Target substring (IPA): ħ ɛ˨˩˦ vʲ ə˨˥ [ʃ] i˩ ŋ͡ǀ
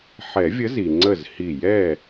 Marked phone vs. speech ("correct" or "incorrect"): incorrect